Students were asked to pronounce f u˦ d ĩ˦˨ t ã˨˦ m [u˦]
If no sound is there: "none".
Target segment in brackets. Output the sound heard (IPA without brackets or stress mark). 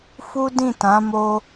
o˦